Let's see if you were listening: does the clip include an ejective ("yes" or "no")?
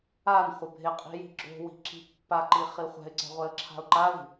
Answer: yes